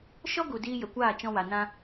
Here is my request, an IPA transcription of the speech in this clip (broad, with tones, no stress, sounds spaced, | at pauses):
ʃ ɔ˦ ɡ u˨ d iː˧ j ə˨ kʷ aː˦˨ t͡ʃ ɔ̃˧ w a˨ n ã˧